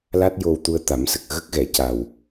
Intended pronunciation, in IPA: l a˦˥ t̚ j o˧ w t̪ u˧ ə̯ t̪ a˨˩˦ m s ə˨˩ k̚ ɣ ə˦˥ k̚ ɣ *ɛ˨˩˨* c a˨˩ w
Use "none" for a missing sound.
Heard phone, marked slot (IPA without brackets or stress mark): ɛ˨˩˨